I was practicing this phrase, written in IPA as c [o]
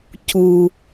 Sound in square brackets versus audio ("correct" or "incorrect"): incorrect